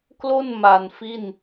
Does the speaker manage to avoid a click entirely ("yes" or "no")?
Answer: yes